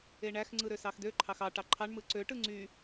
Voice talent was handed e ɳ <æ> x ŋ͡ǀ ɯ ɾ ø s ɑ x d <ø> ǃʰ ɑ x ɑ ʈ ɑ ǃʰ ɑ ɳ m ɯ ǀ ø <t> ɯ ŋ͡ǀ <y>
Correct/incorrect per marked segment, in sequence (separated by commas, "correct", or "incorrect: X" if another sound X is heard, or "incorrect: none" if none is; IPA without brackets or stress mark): correct, correct, incorrect: ʈ, correct